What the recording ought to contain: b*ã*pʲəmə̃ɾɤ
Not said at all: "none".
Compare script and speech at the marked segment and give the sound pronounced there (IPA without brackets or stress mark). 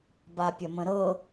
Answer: a